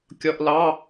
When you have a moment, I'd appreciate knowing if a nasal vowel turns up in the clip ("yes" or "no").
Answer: no